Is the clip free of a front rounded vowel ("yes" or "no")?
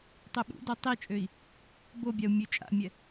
no